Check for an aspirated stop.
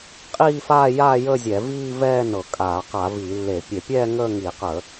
absent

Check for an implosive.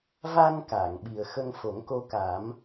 present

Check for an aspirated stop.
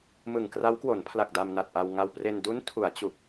present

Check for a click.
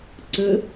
present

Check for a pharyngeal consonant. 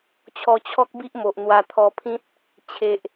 absent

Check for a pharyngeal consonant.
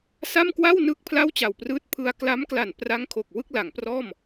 absent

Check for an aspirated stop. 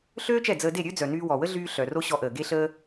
absent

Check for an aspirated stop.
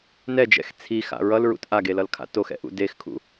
present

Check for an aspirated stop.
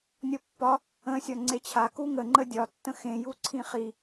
present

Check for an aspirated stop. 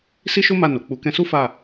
absent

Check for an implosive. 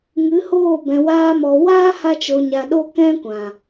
present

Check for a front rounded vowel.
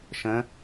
absent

